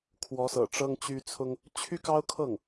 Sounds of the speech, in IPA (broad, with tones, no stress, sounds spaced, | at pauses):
kʰ w ɔ˧˥ s ɤ̰˨˩ ʈ͡ʂ ɤ˥ ŋ t͡ɕ y˥ t͡sʰ ʊ˥ ŋ | t͡ɕʰ y˥ k ɑ˥ ʊ̯ kʰ ɤ˥˩ ŋ